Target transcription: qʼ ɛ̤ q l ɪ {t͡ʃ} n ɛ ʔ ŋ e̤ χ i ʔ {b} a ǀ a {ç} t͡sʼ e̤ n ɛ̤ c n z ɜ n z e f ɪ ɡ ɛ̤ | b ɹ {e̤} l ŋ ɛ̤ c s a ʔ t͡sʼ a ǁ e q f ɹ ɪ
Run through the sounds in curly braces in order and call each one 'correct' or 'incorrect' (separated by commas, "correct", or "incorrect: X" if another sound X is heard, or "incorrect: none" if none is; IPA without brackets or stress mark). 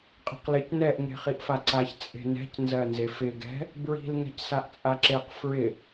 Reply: incorrect: c, incorrect: f, correct, incorrect: i̤